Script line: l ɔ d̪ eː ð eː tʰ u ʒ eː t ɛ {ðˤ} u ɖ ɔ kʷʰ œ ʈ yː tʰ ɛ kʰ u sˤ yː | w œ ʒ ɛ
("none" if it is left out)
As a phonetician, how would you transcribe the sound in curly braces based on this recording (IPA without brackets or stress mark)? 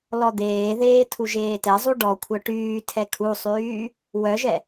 zˤ